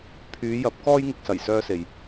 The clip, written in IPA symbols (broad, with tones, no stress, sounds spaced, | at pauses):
pʰ yː˨˧ j ɐ˨˥ p̚ k ɔː˧ j ŋ ɪ˨ k̚ s ɐ˨˩ j s œː˧ s e˨ j